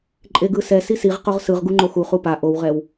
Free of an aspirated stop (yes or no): yes